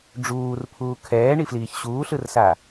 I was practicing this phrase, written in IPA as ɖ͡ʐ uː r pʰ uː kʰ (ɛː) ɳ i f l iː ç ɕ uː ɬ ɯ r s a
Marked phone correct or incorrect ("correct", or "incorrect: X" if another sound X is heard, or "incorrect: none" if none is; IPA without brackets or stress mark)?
correct